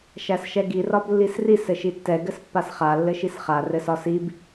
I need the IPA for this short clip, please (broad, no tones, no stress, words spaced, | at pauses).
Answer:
ʃæsʃɛɡi rɒblːisris ɘʃitːɛ ɡɘspːasχa lːɘʃisχa rɘsɒsib